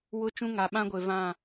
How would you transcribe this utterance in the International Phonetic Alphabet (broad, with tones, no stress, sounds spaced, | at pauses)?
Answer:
w ʊ˦ t͡ʃ ũ˦ ŋ a˨ ɓ ã˦ ɡʷ e˨ v ã˦˨